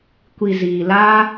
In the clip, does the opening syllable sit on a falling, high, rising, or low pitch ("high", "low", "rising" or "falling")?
low